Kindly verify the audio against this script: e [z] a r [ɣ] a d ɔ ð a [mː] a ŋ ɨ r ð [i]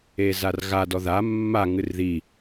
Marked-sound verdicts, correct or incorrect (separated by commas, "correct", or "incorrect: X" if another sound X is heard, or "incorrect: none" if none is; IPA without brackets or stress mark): correct, correct, correct, correct